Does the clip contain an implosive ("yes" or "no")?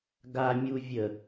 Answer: no